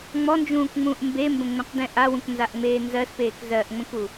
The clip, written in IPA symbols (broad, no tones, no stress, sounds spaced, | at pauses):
ŋ͡m ɔ n d͡ʒ ũː k ŋ͡m ũː ʔ m b e m b ə̃ ŋ͡m ɛ̃ q d ɛ̃ ʔ a w ũ k n z a ʔ ŋ͡m eː n z ɜ s p eː k z ɜ ʔ ŋ͡m ə̃ k u